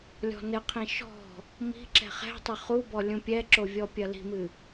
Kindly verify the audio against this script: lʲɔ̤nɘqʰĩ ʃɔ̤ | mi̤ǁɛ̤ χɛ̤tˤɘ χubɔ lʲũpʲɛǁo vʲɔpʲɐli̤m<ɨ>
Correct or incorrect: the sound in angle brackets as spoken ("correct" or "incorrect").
correct